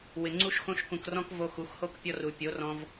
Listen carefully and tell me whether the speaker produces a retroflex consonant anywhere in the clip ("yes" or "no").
no